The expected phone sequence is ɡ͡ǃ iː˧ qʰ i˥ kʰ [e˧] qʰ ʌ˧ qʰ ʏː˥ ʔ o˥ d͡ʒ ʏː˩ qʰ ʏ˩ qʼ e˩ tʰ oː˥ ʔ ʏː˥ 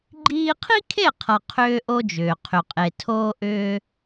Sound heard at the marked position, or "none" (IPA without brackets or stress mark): e˥˩